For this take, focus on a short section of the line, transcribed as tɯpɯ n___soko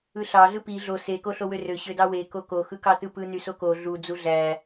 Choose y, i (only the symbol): y